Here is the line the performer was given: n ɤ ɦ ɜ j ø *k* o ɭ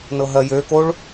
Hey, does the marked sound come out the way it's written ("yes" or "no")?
yes